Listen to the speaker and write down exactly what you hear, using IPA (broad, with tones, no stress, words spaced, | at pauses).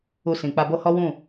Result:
u˧sĩ˨k͡pa˧bo˦ hɔ˦wũ˦˨